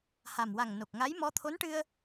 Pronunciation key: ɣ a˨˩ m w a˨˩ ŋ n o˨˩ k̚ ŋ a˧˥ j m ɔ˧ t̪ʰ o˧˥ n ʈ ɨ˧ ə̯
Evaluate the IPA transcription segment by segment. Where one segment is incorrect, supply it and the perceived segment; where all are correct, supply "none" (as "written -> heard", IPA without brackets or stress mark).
ɣ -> h